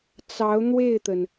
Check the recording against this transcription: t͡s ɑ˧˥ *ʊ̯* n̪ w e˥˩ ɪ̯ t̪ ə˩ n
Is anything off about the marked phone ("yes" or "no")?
no